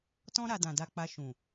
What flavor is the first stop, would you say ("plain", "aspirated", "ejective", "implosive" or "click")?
plain